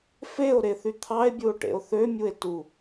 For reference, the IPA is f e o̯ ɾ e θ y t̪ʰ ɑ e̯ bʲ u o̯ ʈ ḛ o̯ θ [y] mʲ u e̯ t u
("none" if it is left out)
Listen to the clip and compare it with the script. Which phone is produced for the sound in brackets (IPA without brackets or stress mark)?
ø